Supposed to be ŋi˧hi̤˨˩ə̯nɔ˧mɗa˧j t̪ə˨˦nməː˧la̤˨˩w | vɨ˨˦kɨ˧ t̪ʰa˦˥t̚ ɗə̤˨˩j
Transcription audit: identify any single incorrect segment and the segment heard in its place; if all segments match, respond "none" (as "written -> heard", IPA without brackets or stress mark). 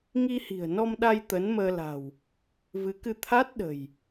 none